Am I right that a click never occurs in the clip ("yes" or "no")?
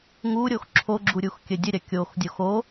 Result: no